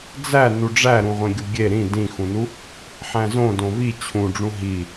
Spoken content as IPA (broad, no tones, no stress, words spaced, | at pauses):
d͡zæ nuɖ͡ʐæɾũʁʷẽ ɡʲuɡʲe ɾĩ dĩxũnu | ħæ̃zõ dõvi t͡ɕʰũɖ͡ʐũ ɦi